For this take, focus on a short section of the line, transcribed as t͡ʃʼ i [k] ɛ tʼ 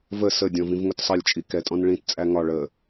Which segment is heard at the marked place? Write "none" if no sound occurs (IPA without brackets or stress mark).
k